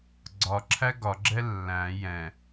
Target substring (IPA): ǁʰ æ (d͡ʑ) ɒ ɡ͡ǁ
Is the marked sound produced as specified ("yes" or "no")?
no